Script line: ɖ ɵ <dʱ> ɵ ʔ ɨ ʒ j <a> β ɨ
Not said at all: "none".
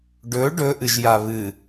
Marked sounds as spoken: ɖ, a

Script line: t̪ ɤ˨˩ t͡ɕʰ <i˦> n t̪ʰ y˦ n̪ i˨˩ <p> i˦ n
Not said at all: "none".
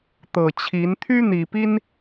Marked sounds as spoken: i˨˦, p

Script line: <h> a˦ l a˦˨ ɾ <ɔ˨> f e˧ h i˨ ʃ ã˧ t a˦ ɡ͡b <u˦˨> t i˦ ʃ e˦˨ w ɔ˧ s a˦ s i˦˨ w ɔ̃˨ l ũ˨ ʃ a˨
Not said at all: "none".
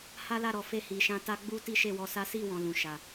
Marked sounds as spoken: h, ɔ˨, u˦

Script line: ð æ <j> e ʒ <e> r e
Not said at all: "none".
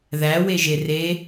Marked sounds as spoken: w, e

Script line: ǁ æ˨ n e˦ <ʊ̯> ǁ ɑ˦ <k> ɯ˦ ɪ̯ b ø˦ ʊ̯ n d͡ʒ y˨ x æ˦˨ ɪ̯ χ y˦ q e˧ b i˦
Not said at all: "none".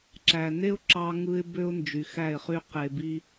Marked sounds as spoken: ʊ̯, ŋ

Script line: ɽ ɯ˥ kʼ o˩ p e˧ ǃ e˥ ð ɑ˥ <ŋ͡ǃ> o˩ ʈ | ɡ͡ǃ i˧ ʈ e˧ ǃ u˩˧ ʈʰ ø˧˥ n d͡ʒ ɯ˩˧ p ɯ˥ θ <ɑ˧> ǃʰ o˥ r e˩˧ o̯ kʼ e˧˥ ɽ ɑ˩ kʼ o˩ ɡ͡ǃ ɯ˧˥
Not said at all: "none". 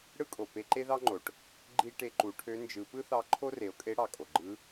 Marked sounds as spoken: ŋ͡ǃ, ɑ˧

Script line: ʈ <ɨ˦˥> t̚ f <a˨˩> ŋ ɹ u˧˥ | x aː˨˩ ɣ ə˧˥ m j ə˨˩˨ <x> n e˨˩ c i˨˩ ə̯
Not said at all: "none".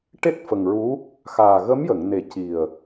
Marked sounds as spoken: e˦˥, ə˨˩, ŋ

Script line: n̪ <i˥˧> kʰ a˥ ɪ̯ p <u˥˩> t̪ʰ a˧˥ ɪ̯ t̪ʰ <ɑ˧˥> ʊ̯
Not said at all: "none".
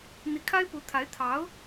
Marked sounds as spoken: i˧˥, u˧˥, ɑ˧˥

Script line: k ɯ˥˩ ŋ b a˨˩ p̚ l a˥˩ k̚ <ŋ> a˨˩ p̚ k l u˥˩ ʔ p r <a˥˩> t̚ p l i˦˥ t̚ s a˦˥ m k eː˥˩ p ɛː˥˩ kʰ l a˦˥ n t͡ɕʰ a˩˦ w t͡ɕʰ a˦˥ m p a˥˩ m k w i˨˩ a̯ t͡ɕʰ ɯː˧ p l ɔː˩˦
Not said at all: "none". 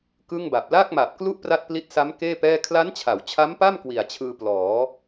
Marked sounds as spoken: m, a˥˩

